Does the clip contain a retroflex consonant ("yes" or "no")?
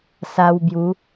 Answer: no